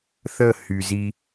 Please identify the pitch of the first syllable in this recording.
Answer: falling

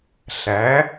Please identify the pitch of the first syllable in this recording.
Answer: rising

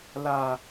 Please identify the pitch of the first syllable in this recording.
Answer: low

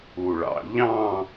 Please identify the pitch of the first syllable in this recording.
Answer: low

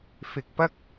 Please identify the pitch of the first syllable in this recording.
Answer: low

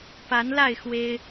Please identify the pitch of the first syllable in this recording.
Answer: rising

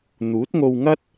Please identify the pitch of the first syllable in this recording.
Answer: rising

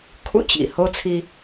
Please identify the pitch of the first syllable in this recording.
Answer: high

